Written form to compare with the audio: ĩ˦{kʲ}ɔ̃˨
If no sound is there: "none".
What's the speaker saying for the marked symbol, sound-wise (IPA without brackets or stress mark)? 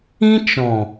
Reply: t͡ʃ